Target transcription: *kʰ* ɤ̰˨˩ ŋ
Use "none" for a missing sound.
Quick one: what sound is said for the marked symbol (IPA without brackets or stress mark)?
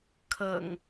kʰ